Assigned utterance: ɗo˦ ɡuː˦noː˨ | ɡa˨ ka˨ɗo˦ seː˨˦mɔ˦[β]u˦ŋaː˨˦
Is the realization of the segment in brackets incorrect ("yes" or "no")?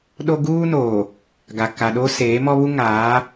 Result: no